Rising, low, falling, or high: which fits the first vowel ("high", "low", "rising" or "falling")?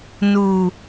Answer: low